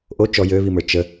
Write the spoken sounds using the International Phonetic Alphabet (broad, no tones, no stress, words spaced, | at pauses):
ʔo t͡ʃɔ jøβimə˞ t͡ʃə